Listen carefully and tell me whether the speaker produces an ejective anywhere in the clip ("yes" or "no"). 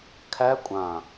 yes